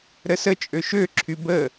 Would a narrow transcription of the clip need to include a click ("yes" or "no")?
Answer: yes